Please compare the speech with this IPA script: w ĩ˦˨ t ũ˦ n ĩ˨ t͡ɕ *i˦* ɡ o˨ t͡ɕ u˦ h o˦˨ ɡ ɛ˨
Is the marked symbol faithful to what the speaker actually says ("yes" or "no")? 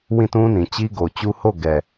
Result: yes